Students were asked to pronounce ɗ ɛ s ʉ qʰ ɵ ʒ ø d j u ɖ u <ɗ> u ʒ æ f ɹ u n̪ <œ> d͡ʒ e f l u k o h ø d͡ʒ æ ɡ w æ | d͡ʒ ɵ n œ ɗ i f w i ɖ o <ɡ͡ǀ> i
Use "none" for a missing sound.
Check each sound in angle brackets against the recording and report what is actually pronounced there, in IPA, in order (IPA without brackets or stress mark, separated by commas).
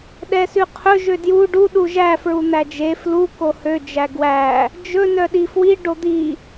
ɗ, æ, d̪